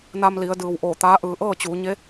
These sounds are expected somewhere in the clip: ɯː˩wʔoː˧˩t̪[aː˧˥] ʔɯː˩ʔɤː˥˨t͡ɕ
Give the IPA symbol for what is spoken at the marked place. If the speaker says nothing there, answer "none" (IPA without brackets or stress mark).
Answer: aː˧˥